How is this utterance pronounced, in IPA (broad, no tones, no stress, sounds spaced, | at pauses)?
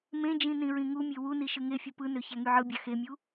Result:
m ẽ d͡ʒ ĩ n ĩ ɹ ĩ ŋ u mʲ e w u n i ʃ ɯ ŋ e fʲ ɯ p ɯ n ø ç æ ŋ y ʕ ɯ bʲ ɑ x e mʲ u